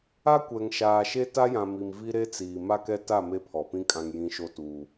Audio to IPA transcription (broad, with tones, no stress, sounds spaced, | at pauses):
a˦ kʷ ɛ˨ ŋ ʃ aː˨ ʃ e˦ t a˦ j ã˨ m i˨ m v i˦ ɾ e˦ t͡s iː˨ m a˦ k ɛ˦ t a˦˨ m e˦ pʰ ɔ˨ p ĩ˦ kʼ ã˨ ŋ j ĩ˨ ʃ o˦ t uː˦